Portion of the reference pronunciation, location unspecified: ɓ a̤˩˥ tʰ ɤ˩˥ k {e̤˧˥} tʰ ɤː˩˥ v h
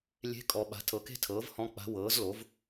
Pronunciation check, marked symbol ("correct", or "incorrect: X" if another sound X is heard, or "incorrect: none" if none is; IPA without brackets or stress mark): incorrect: e̤˥